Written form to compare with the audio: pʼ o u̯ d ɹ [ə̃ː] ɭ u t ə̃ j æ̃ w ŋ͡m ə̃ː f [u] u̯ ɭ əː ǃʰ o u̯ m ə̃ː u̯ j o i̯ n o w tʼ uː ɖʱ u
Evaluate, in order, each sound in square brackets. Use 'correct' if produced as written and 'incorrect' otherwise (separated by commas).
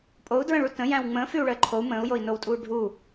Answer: incorrect, incorrect